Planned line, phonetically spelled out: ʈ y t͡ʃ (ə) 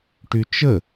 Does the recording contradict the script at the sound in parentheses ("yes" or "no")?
no